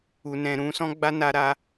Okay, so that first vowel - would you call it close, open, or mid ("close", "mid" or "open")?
close